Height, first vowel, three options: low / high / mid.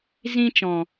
high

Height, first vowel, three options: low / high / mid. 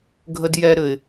mid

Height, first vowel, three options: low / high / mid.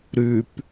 high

